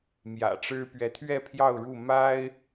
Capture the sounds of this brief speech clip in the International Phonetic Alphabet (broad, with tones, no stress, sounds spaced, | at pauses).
m j ä̰˨˩ ʈ͡ʂ ɻ̩˦ p ɥ ɛ˨˦ t̪ʰ ɥ ɛ˥˨ pʰ j ɑ˥˨ ʊ̯ ɻ u˥˨ m a˦ ɪ̯